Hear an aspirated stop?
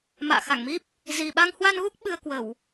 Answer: no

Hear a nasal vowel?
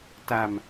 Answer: no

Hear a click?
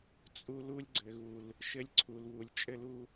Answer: yes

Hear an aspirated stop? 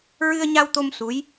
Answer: no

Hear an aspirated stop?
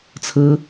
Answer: yes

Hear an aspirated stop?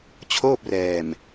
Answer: yes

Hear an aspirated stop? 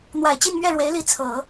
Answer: yes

